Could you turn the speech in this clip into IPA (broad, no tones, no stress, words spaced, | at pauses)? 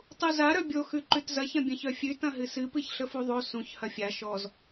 tˤuza ɾœbʲo xʉǃʉtzɐç ɐ̃bʲɐ̃ç œfʲʉ tɐ̃ɦɨsɨ pɨçɬəfuðˤo sũç hɐfʲa ʃɔz